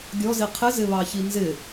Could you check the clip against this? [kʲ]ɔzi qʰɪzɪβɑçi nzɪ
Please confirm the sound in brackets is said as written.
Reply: no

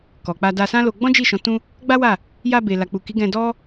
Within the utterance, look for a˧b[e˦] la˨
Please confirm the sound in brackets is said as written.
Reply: no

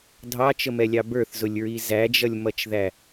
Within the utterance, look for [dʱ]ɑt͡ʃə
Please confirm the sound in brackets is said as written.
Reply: yes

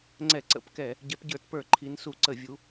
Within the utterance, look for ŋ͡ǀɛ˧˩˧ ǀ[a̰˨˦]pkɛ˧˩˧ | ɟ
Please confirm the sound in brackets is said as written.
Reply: no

